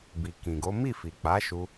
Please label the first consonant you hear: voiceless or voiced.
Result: voiced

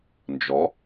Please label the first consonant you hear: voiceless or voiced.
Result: voiced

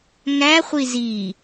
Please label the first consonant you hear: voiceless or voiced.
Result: voiced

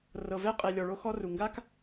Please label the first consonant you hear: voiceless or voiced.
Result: voiced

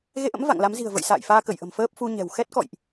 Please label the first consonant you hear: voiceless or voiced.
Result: voiced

